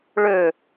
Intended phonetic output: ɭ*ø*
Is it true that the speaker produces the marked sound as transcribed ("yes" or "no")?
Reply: yes